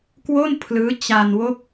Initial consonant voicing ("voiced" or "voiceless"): voiceless